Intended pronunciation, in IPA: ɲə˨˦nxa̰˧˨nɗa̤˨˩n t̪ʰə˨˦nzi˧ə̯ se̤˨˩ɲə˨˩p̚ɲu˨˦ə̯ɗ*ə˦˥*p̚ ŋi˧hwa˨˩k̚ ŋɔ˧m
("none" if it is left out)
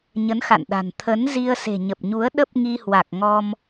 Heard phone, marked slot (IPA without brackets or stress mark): ə˦˥